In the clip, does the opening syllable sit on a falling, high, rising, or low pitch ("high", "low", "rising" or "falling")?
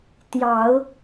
rising